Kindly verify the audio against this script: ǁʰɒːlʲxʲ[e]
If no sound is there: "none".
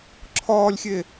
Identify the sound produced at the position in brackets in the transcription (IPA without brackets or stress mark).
e